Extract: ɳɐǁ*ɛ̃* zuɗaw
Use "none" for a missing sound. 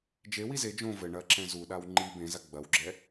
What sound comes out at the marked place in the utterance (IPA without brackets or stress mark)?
ɛ̃